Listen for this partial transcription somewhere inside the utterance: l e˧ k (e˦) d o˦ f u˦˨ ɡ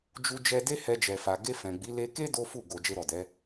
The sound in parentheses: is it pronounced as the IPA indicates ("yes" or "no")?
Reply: yes